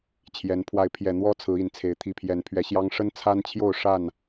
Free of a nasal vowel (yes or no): yes